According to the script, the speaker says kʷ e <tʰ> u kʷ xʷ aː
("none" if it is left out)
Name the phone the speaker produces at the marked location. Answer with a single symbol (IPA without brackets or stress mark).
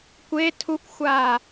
tʰ